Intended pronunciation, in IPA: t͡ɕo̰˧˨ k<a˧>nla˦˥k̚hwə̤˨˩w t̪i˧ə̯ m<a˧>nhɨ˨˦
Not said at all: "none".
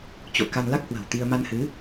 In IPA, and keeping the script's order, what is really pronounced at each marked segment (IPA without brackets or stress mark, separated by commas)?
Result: a˧, a˧